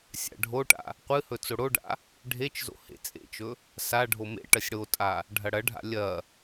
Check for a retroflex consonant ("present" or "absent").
present